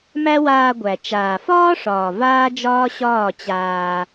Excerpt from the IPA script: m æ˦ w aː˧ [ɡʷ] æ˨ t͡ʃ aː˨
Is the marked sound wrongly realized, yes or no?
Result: no